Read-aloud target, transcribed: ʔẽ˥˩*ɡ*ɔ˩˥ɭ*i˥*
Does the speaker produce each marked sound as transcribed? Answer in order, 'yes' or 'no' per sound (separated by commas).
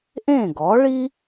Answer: yes, yes